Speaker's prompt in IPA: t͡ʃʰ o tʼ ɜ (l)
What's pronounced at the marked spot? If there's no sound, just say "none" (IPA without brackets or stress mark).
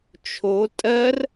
r